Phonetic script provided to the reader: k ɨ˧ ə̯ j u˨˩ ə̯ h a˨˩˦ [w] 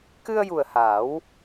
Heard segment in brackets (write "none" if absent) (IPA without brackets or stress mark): w